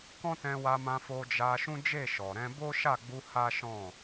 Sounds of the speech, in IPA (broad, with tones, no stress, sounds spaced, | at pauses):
k ɔ̃˦ t ɛ̃˧ w a˧ m ã˧ f o˧ d͡ʒ a˧ ʃ ũ˦ d͡ʒ e˦˨ ʃ ɔ˨ ɾ ɛ̃˧ b o˦ ʃ a˦˨ ɡ͡b u˧ h a˦ ʃ ɔ̃˦˨